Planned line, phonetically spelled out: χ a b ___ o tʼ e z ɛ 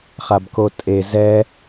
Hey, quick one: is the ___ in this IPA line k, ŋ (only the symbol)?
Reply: k